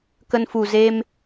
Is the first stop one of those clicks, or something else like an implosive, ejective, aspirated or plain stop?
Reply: plain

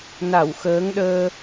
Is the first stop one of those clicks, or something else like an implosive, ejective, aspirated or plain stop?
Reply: implosive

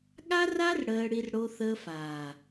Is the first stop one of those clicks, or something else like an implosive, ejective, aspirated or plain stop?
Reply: implosive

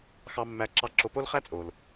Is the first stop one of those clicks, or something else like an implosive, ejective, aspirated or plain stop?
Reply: click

